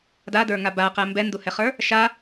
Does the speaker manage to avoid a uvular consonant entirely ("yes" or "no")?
no